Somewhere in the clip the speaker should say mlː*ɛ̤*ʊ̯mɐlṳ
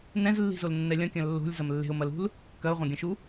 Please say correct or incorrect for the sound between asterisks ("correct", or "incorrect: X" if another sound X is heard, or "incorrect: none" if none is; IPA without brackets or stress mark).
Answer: incorrect: e̤